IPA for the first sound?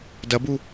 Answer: d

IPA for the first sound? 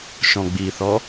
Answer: ʃ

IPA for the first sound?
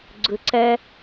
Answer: ɡ͡ǀ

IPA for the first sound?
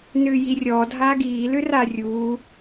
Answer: n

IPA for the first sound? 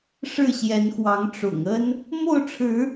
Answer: ʂ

